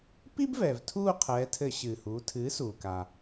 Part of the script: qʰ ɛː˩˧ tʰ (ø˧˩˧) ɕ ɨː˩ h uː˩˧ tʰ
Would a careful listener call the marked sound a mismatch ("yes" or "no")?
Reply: yes